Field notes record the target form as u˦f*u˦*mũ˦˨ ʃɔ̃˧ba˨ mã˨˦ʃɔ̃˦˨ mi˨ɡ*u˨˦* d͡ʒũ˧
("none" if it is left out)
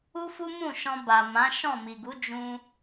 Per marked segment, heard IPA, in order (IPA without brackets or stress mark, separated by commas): u˦, u˨˦